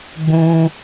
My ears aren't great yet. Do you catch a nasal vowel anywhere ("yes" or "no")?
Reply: yes